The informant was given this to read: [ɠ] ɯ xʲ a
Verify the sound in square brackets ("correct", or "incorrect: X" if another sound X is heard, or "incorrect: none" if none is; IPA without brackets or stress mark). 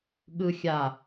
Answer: correct